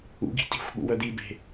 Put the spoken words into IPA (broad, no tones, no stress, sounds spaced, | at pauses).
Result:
ṵ ɡ i̤ t i̤ xʷ ɓ ṵ w œ d̪ i b e̤